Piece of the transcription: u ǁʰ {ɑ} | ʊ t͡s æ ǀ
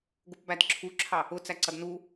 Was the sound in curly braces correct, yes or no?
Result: yes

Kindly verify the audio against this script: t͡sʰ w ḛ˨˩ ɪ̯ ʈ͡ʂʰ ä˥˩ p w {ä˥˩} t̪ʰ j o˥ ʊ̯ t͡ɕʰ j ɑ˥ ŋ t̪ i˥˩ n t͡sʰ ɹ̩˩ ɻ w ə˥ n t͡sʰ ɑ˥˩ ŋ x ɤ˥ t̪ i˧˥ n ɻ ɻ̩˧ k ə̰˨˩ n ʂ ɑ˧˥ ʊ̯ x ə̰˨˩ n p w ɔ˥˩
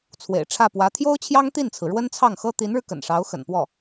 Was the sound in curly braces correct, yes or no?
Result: no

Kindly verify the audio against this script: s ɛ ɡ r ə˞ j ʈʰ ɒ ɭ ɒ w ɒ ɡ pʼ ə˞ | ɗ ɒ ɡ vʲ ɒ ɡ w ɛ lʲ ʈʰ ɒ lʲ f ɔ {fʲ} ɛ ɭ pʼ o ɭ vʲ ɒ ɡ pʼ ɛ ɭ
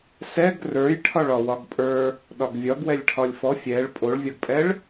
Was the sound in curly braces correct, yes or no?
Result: yes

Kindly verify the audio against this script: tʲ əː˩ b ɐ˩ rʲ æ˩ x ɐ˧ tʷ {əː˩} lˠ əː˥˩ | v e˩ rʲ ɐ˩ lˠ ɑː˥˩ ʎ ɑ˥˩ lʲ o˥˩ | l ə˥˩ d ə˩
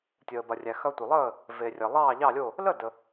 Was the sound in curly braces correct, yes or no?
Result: no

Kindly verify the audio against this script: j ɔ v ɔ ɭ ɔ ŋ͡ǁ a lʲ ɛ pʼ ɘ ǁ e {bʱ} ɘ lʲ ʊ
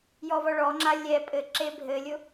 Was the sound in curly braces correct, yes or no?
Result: yes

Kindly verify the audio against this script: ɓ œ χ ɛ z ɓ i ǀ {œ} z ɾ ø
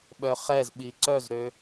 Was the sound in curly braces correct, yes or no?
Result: yes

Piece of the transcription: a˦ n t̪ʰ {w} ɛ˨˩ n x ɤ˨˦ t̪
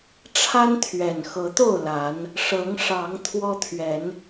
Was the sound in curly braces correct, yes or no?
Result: no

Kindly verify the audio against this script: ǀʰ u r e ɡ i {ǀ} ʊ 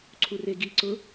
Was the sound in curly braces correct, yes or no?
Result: yes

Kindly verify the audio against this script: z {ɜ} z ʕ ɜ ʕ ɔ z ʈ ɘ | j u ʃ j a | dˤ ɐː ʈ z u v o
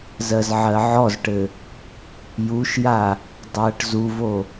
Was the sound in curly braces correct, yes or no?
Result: yes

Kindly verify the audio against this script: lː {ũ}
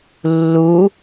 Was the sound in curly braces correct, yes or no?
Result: no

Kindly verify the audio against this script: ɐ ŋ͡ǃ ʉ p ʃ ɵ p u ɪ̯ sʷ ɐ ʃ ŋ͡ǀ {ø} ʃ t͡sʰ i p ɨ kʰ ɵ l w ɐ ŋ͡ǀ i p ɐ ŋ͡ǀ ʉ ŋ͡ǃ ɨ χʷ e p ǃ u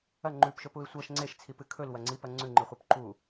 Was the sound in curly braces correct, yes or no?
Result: no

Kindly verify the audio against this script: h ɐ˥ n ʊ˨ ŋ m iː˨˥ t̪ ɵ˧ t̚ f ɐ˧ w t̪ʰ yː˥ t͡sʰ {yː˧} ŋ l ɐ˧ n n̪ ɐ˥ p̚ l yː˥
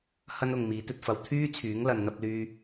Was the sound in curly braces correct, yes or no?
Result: no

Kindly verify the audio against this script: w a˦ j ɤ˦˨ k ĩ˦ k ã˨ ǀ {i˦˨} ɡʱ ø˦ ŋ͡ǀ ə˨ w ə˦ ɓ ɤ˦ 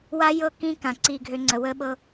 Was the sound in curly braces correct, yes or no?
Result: yes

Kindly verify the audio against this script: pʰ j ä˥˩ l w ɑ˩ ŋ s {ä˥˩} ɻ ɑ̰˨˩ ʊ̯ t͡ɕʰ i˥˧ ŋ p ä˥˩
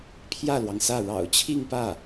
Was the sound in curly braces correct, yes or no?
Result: yes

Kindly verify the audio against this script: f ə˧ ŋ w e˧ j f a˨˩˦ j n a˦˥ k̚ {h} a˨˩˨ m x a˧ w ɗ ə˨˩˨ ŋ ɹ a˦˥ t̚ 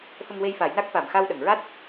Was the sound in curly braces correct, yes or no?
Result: no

